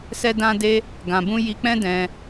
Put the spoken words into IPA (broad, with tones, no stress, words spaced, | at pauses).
sɛ˦ dã˦de˦ | ɡã˨bũ˧ ji˧k͡pɛ̃˦dɛ̃˧